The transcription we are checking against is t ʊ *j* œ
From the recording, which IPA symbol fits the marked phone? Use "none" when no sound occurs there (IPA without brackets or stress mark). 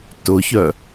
ç